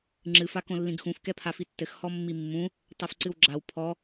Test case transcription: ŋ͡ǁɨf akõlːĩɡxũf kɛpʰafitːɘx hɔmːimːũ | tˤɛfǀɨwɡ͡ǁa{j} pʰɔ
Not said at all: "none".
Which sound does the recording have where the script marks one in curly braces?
w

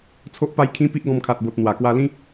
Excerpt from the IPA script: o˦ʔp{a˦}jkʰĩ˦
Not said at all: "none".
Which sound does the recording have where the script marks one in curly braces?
a˦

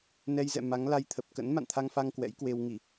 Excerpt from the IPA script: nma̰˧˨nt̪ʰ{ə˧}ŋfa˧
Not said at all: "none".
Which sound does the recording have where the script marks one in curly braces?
a˧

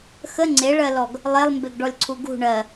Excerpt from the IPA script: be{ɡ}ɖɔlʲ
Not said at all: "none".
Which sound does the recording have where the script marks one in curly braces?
ɡ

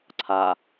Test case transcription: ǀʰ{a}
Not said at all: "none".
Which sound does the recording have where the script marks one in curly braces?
a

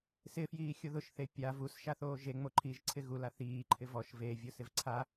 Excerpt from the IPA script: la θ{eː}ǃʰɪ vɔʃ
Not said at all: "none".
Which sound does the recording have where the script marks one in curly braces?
iː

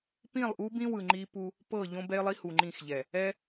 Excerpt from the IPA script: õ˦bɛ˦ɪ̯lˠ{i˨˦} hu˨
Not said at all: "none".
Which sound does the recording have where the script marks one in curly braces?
i˦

